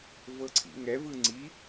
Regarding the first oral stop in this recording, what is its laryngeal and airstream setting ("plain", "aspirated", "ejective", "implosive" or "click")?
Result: click